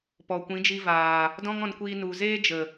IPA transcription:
p ɔ˨ kʷ ĩ˨˦ d͡ʒ i˧ v aː˨ | d ɔ̃˦ ŋ ɔ̃˧ n kʷ iː˧ n u˨ z eː˦ d͡ʒ ə˨

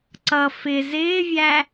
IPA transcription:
ǀ ʌ f ɪ z ɪː vʲ æ

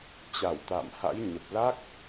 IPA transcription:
t͡ɕ a˧˩ w t̪ a̰ː˧˨ m h a̰˧˥ j ɲ ə˨˩ p̚ l a˦˥ k̚

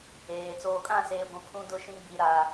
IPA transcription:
eː˨ t͡s oː˨ kʼ ã˦˨ s eː˨ ɡʷ ĩ˨ pʰ ũ˦ d ʊ˦˨ ʃ ĩ˦ ɡ͡b i˨ ɾ a˨

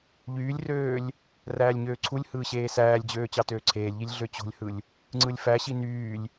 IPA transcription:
ʎ yː lʲ r øː lʲ | r æː lʲ ɲ øː ǀʰ u lʲ h ɯː ɕ eː s æː lʲ d͡ʑ øː t͡ɕ ɑ t øː ǀʰ eː lʲ ʎ i lʲ ɮ ø t͡ɕ o̤ lʲ h ɯ lʲ | ŋ͡ǀ ɯ lʲ f æ ɕ i n yː lʲ

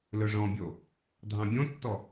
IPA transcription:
l ɵ ʐ ɔ̃ bʲ o | dʱ ɑ̃ bʲ õ tː ɔ

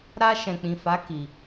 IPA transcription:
ɾ a˧ ʃ ɛ̃˨ k͡p ĩ˨ f a˨˦ k i˧

